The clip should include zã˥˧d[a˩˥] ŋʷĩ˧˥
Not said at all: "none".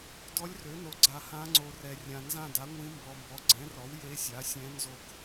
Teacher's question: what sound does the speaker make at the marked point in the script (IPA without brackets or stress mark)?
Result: a˩˥